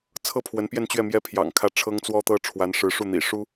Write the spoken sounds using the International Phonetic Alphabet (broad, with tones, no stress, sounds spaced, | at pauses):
t͡sʰ ɤ˥˩ pʰ w ə˧˥ n p j ɛ˥˧ n t͡ɕ ɥ ɛ˥˩ m j ɛ˥ pʰ j ɑ̰˨˩ ŋ kʰ ä˥˩ ʈ͡ʂʰ ɤ˥ ŋ t͡s w ɔ˥ t̪ ɤ˥ ʈ͡ʂʰ w a˧˥ n ʂ ɻ̩˧˥ ʂ u˥˩ n̪ ḭ˨˩ ʂ u˥